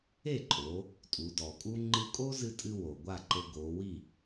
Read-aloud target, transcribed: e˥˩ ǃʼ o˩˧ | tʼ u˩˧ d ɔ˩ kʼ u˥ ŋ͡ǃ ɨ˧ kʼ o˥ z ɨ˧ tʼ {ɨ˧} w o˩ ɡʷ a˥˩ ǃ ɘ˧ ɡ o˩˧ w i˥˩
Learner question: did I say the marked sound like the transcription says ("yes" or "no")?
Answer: yes